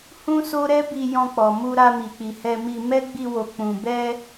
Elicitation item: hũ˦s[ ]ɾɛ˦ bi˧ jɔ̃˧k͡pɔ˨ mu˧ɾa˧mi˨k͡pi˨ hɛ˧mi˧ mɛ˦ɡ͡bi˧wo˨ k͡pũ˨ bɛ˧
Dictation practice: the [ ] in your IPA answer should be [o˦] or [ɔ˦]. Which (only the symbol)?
o˦